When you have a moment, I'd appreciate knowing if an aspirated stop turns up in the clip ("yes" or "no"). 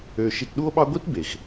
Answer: no